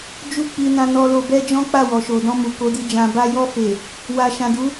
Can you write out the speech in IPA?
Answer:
d͡ʒu˦k͡pi˧ nã˧nɔ˧lo˧ bɛ˦d͡ʒɔ̃˦k͡pa˦˨ wɔ˨ʃo˨dɔ̃˧mu˨ ko˨˦di˧d͡ʒã˧ba˦ jɔ˧fe˨ | wa˨ʃã˨du˨˦

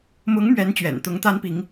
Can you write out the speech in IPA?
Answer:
mʊ˧˥ŋ mɥɛ˧˥nt͡ɕɥɛ̰˨˩nt̪ʊ˧˥ŋ t̪a˥npi˧˥ŋ

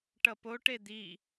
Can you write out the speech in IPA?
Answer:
ʈʌpoʈe d̪i

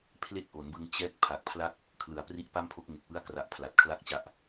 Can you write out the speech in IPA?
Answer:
pʰle˥˩k̚ʔo˩˦nbɯ˧ŋ t͡ɕɛː˦˥k̚ pʰa˨˩k̚pʰla˥˩k̚ | kʰlɯ˩˦a̯pri˦˥ʔpa˥˩mpʰo˦˥k̚ ŋe˨˩k̚wɯ˦˥a̯kra˨˩ʔ pʰla˨˩t̚kʰla˥˩k̚t͡ɕa˦˥ʔ

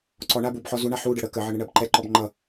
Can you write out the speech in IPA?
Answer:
ǀɔ ɳabubħɔ zuɳa ħuɖə ɽə kəʕʌɳ əɳɜbǃɛǃɔb ŋ͡ǃʌ

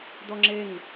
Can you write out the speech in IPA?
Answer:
d̪ɔŋ͡ǁeŋ

